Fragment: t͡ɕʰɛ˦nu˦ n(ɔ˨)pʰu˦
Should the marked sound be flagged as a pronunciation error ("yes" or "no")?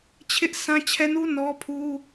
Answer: yes